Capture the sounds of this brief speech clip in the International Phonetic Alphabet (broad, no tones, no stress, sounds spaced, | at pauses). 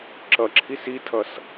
ǁ ʌ ǁʰ i s i tʰ ʌ s